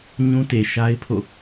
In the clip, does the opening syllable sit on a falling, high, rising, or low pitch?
high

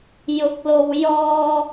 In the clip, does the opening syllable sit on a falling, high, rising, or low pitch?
rising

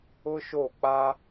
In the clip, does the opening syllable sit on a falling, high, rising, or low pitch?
high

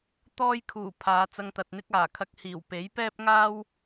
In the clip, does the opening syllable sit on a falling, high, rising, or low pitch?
high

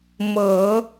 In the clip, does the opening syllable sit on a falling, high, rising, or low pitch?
low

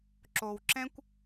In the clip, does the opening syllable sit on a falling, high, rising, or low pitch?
low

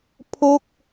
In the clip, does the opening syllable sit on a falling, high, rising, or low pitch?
falling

